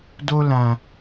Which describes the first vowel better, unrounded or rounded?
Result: rounded